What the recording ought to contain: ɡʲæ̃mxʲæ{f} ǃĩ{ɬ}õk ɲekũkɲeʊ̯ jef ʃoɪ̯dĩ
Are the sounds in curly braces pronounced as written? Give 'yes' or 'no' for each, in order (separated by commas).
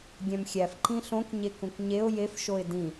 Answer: yes, yes